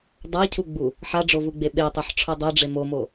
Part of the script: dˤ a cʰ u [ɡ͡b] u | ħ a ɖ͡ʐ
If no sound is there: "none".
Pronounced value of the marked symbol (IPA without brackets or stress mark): ɡ͡b